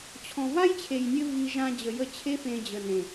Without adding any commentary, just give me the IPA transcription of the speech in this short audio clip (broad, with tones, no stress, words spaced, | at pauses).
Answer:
t͡ɕʰɔ̃˨va˦jt͡ɕʰe˨jnʲɘ˧ vi˧ ʒã˧d͡ʑə˨jə˧t͡ɕʰe˦ fẽ˧d͡ʑə˨ nẽ˨